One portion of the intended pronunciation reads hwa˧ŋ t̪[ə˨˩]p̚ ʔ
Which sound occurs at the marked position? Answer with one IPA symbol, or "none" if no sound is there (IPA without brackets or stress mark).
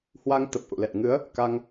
ə˨˩